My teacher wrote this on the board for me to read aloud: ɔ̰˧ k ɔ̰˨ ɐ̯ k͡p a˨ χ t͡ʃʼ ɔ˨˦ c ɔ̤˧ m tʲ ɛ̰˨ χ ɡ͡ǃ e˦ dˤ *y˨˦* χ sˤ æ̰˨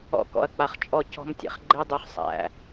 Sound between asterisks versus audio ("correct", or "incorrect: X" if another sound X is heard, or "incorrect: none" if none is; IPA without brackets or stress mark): incorrect: y˧